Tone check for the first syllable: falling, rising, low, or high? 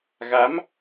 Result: rising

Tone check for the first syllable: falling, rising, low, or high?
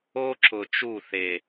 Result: high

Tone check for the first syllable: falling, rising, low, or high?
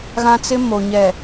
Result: high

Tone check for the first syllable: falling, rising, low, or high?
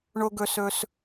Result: high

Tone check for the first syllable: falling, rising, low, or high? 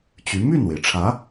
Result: rising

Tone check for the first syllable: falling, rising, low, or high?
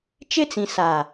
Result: high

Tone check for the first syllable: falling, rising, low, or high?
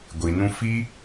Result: low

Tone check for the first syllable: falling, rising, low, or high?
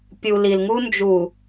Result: low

